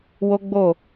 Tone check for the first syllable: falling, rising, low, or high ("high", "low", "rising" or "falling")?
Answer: high